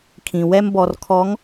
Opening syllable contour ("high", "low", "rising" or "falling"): low